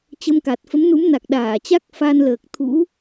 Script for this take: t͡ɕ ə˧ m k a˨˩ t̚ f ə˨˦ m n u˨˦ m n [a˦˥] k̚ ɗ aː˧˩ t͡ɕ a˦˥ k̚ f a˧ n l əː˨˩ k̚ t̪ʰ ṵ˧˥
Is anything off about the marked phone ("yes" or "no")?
yes